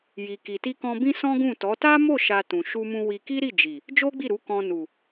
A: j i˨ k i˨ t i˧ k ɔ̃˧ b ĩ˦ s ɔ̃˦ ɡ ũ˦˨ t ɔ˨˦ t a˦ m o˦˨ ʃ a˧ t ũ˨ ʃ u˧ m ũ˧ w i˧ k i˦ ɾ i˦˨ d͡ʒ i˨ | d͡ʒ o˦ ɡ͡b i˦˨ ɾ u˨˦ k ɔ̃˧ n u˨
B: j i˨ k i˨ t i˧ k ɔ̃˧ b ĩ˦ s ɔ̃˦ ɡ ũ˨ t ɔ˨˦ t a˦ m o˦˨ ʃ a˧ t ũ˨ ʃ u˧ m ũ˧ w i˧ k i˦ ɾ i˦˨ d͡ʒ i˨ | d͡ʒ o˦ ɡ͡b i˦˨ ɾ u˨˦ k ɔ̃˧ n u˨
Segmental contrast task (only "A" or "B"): A